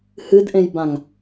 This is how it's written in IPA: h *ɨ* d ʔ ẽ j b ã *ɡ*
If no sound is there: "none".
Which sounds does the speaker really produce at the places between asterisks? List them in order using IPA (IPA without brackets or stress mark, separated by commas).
ɨ, ŋ